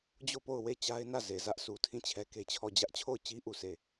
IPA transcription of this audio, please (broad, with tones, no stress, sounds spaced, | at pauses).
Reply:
d͡ʑ o˦˨ p o˦˨ ʊ̯ w e˦˨ t͡ɕ a˦ ɪ̯ n ä˦˨ z e˨ z ä˦ ʔ sʰ u˨ tʰ ĩ˦˨ t͡ɕʰ ɛ˦ k e˦ t͡ɕʰ ɔ˦˨ d͡ʑ ä˦ ʔ t͡ɕʰ o˦˨ ʊ̯ t͡ɕ i˦ ʔ u˦˨ sʰ e˦˨